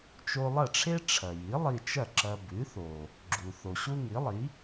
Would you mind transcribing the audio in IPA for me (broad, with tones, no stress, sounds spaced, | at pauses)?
t͡ʃ o˧ lˠ ɐ˥˩ ʈ͡ʂʰ e˥ ʈ͡ʂʰ ɐ˩ j i˩˥ lˠ i˧ t͡ʃ ɐ˥˩ ǁ ɐ˧ b ʉ˩˥ θ o˩ | ɡ͡ǁ u˩ θ o˩ ɕ u˥ ŋ i˩˥ lˠ i˩˥